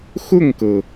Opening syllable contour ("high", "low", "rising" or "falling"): falling